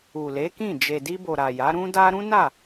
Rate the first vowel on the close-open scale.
close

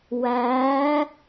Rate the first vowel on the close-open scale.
open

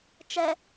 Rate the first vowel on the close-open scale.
mid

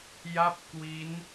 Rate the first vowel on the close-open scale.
open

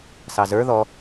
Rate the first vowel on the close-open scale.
open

